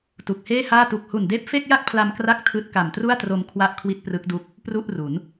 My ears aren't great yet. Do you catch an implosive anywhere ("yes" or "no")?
no